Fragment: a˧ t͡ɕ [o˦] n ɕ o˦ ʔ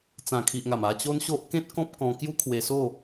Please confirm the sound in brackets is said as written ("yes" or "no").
yes